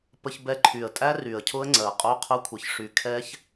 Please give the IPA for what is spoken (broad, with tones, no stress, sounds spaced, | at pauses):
p ə˧ ç b ɛ˧ ǃʰ y˨˩ ə̯ tʼ æ˦˥ r y˨˩ ə̯ cʰ ʊ˦˥ ə̯ ŋ͡ǀ ɜ˨˩ qʼ o˧˥˧ qʰ ʊ˧ kʷʰ ə˨˩ ç ʂ y˨˩ kʰ ɛ˦˥ ç